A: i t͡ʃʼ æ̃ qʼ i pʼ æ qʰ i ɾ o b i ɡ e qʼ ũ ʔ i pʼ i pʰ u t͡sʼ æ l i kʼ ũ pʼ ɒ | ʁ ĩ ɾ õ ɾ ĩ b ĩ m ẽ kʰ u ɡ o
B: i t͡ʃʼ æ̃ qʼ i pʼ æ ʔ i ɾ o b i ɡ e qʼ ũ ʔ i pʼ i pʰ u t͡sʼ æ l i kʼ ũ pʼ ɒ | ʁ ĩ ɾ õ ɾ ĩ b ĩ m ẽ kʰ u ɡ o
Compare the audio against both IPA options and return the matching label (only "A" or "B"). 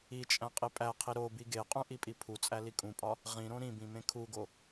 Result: A